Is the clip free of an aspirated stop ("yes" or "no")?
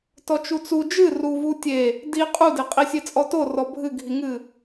yes